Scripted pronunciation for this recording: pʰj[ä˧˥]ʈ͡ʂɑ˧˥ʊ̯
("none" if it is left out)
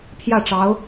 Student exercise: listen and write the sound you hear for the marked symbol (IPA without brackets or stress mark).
ä˥˩